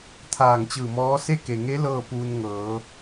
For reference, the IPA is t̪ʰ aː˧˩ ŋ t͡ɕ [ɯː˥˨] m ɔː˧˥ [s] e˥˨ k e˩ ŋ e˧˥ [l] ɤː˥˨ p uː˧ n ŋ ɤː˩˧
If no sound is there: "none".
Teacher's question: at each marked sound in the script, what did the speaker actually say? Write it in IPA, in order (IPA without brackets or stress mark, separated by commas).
ɯː˧˩, s, l